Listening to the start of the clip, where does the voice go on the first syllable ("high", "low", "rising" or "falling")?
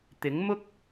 rising